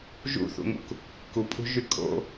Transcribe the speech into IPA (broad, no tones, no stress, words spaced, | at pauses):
ʒṵθṵŋṵk | kupʼṳʒy kʼo̰